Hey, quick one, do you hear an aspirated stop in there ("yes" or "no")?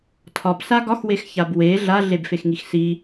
yes